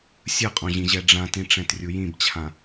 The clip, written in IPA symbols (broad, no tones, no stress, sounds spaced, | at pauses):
sʲ ɯ qʼ õ ʑ ĩ ʑ ɛ ɖ͡ʐ ã t ĩ ʈ͡ʂ ɛ̃ t rʲ u j ĩ b t͡ɕʰ ã